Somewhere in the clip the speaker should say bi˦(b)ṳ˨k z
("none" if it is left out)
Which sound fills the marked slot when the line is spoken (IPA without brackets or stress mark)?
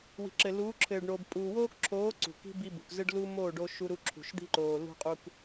b